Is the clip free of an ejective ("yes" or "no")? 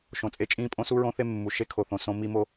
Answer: no